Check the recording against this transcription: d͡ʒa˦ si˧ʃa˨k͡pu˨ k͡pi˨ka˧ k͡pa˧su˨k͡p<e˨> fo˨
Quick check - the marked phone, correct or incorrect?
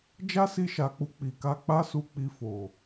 incorrect